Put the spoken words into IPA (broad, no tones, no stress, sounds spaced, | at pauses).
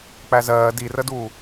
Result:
k͡p æ z ɜː d i r ə d uː